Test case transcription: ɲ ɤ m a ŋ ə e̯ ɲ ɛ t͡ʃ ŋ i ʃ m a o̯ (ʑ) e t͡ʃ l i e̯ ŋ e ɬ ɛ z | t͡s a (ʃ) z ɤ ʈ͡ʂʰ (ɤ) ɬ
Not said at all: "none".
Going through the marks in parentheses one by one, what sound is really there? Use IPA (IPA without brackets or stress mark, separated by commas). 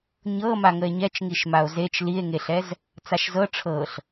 z, ʃ, ɤ